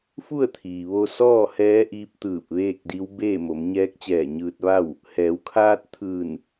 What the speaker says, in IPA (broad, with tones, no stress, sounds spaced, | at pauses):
f u˥˨ ə̯ t̪ʰ iː˩ ʋ o˧ s ɔː˥˨ h ɛː˧˥ ʔ iː˧˥ p̚ t̪ ɯː˧˩ p̚ ʋ eː˥˨ k̚ d i˧˥ w b eː˥˨ m o˩˧ m ɲ ɛː˧˥ k̚ t͡ɕ ɛː˧˩ ɲ ɯː˧ t̚ ʋ a˥˨ w | h ɛː˩˧ w kʰ aː˧ t̚ t̪ʰ ɯː˧˩ n